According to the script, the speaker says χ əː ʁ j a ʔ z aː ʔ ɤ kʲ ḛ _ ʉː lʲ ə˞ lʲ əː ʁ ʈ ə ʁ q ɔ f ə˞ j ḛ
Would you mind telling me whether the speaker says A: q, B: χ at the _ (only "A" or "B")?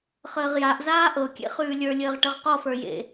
B